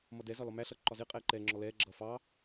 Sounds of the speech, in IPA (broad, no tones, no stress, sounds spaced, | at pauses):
m ʌ d ɛ z ɒ l ɒ m æ ɬ ʌː ǃ ɒ z ɪː qʼ ɛː ǃ ɛː ŋ͡ǁ ɔ l ɛː ɡ͡ǁ ʌː f ɑ